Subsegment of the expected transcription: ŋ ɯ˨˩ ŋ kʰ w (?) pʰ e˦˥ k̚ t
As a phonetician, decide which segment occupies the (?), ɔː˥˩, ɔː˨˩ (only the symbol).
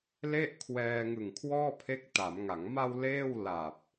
ɔː˥˩